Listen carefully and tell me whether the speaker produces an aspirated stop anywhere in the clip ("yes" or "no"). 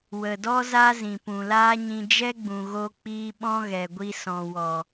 no